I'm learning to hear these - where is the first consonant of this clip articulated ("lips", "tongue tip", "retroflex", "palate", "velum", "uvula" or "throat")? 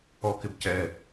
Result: velum